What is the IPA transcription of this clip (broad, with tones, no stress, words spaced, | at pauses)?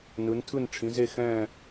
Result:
nɯ˩˧ntʰɯ˦˨n ʈ͡ʂʰĩ˩˧ze˦˨xɛ̃ː˦˨